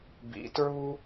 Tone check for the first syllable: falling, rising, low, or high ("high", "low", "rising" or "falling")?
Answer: rising